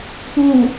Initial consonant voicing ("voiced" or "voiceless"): voiceless